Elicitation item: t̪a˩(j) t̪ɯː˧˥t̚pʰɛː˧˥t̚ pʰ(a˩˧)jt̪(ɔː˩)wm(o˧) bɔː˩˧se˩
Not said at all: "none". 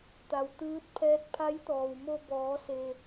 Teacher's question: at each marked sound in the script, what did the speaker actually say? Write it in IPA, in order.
w, a˧˥, ɔː˩, o˧

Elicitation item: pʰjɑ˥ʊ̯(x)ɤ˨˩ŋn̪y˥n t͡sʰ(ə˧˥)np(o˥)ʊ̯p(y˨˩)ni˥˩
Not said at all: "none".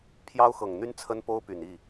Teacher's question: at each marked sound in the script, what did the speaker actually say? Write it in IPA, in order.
x, ə˥, o˥, y˨˩

